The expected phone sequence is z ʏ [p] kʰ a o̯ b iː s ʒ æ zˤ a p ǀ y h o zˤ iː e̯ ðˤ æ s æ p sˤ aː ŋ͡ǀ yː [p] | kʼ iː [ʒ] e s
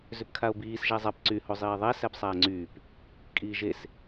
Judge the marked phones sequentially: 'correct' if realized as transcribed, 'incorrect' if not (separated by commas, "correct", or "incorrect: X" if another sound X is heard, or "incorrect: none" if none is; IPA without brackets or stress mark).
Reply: correct, correct, correct